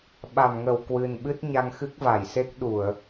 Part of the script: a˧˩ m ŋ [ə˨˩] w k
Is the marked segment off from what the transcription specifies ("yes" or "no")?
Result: yes